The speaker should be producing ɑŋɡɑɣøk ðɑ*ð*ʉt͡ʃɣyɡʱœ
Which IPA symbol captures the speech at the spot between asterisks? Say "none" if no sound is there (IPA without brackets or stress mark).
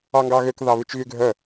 β